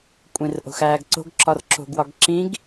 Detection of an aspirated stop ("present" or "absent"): absent